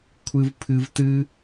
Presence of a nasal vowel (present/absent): absent